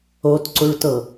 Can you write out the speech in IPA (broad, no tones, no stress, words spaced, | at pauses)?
otǀuɭtɤ